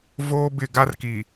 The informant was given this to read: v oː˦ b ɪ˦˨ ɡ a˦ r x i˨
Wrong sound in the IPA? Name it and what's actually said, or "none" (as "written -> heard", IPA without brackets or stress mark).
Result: x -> k